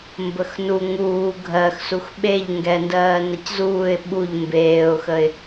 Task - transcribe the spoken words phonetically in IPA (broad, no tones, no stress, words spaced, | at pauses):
mbəxnu ŋuː ɡʱɜxsux ɓeʎŋɡɛndɜː nɐczuːɪ̯ ɓuʎ mbeːʊ̯xəɪ̯